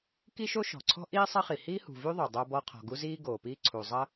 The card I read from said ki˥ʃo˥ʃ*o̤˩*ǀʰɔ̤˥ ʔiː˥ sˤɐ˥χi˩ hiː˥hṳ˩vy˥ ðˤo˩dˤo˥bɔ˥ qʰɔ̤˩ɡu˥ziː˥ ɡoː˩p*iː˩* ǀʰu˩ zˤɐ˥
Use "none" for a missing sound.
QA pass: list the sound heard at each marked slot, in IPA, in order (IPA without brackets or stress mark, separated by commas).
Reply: ɔ̤˩, iː˥